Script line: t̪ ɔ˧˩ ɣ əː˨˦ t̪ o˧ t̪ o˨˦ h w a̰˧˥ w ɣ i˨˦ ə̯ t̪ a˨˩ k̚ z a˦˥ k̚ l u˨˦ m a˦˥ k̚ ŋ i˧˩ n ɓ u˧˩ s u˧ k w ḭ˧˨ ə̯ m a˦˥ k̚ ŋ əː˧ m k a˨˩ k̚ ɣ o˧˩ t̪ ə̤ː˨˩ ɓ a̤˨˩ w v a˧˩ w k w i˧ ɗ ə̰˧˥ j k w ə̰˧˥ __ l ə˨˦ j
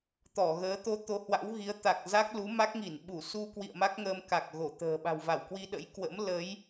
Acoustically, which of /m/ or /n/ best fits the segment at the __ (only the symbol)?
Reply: m